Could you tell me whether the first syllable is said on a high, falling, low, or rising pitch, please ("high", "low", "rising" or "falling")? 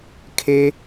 low